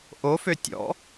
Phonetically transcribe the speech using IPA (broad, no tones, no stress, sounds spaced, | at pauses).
ʔ o f ø tʲ ɔ̰